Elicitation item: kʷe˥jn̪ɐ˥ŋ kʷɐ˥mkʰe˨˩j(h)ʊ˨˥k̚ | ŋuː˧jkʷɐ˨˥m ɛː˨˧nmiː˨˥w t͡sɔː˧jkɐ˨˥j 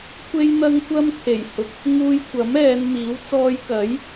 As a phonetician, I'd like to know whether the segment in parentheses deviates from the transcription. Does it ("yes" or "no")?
no